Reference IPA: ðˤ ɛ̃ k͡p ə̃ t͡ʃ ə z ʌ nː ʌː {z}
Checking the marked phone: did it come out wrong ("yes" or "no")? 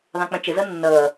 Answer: yes